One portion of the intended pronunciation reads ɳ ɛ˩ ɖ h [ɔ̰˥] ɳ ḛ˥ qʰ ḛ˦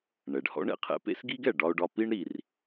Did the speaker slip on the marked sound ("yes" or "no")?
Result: no